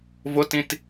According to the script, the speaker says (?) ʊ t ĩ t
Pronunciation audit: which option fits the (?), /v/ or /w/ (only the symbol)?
v